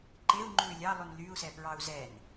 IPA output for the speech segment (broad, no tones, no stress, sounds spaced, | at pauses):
ǃ e u̯ ŋ͡ǃ ʉː lʲ ɑ lˠ ʉ n l y u̯ s ɛ p ɹ ɑ u̯ z ɛ n